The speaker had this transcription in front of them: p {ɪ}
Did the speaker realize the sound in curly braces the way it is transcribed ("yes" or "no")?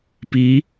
no